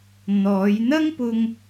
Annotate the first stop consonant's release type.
plain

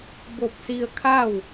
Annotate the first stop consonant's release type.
plain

